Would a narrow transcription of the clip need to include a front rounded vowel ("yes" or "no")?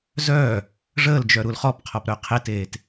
yes